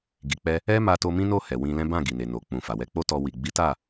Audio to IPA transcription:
ɡ i˨ k͡p ɛ˧ | ɛ˦ m a˧ t o˧ m ĩ˦ n o˦˨ h ɛ˨ w ĩ˧ l ɛ̃˦ b ã˦˨ ɡ i˨ n e˨ n o˨ k͡p ũ˨ f a˨ w ɛ˧ k͡p o˦ t ɔ˧ w i˨ ɡ͡b i˨˦ t a˦˨

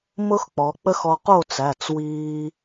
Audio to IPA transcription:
m ʊ˥ x k͡p ɔ˩˧ k͡p ə˥ x ɔ˧ q o˥˨ t͡s æ˩˧˩ t͡s w iː˧

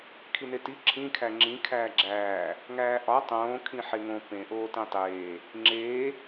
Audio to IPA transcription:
kʰ i n e t i ǁʰ ĩ kʰ æ ŋ͡ǁ ĩ kʰ æː ɡ͡ǁ æː | ŋ æː ʔ ɒ tˤ õː kʰ ĩ ħ e ŋ õ p ẽ ʔ oː t ẽ tˤ eː | ŋ͡ǁ eː

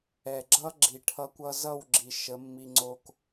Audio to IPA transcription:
ɛ˨ ɡ͡ǁ ʌ˦ ɡ͡ǁ i˨ ʈʰ ʌ˧ kʷ ʌ˧ z ʌ˦˨ w ɡ͡ǁ i˨ ʃ ə˨˦ mː i˧ ŋ͡ǀ o˧ k

